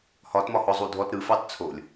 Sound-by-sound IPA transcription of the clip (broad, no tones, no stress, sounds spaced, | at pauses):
h ɒ t m ɒ h ɔ zˤ u dʱ ɔ t ɾ ɯ f ɑ t t͡sʰ o lʲ